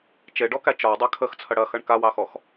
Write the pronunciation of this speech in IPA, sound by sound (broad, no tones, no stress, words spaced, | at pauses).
t͡ʃeɖɔkæ t͡ʃɒwdˤa kʰəxt͡sʰɐ ɽɐxɐɳ kawɑxɔx